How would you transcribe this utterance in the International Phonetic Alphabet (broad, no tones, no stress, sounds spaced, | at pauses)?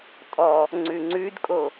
tʼ ɔ | ŋ͡ǀ ʉ ŋ͡ǀ ʉ d kʼ o